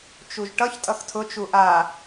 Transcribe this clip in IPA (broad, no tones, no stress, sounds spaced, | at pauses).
t͡ʃ u ʒ ʈ ʌ ç tʼ ʌ x tʰ ʊ t͡ʃ u ʔ a